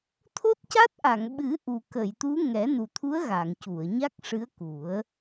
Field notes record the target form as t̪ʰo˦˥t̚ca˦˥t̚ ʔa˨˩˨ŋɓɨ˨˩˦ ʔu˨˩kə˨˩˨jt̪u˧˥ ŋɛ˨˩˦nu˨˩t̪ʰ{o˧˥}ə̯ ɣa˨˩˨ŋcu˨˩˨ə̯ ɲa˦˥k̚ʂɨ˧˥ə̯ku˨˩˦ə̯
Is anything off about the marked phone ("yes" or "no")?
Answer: yes